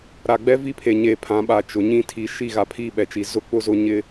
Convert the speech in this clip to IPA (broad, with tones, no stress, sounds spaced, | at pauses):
ɾ a˨ ɡ͡b ɛ˦ v i˦ pʰ e˨ ɲ e˨ pʰ ã˨˦ ɓ a˨ t͡ʃ ʊ˨ ɲ ĩ˦ tʰ i˨˦ ʃ i˦˨ ɣ a˨ pʰ i˦˨ ɓ ɛ˨ t͡ʃ i˨ z ʊ˦ k͡p ʊ˦ z ʊ˦ ɲ ɪ˦